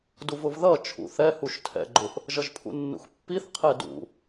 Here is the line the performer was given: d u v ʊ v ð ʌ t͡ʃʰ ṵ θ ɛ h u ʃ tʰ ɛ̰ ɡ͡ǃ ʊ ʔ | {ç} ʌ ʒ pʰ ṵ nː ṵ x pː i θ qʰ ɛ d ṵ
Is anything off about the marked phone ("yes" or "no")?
yes